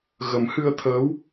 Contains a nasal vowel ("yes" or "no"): no